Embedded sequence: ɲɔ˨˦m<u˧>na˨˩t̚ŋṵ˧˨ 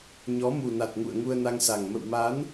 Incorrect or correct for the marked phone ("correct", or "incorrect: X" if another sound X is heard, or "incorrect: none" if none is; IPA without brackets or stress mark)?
incorrect: u˨˩